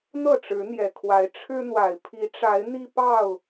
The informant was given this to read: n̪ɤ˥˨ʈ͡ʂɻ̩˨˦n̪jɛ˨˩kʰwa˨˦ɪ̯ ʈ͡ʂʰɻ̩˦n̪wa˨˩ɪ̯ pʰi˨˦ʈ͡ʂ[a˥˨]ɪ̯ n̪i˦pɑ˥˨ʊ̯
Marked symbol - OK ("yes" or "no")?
no